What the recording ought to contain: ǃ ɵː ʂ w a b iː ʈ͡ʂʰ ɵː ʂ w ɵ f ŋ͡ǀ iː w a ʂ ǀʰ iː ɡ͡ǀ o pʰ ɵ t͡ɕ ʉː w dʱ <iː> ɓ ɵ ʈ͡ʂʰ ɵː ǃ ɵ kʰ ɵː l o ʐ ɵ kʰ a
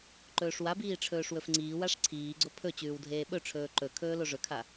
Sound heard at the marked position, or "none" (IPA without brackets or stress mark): eː